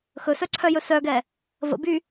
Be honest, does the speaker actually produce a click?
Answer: yes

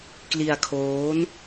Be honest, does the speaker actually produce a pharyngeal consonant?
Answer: no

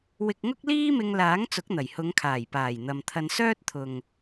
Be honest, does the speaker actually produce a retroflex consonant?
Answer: no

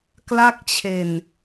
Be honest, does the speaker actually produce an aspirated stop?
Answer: yes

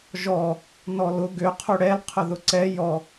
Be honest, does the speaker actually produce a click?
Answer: yes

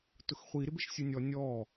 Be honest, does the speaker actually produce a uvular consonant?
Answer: yes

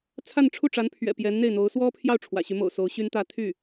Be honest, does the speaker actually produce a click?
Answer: no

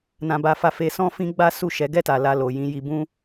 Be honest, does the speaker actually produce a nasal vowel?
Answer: yes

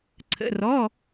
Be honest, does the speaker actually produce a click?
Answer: yes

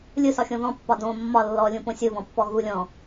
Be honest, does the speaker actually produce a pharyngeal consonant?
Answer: no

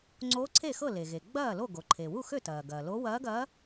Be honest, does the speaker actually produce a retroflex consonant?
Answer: no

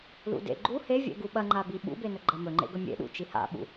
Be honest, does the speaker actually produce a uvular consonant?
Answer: no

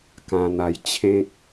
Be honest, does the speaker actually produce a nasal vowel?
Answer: yes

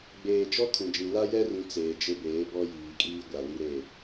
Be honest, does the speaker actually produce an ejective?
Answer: yes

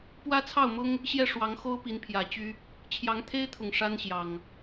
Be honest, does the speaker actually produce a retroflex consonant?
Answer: yes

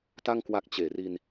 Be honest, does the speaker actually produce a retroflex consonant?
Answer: no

